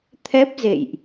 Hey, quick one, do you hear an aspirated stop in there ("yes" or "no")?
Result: yes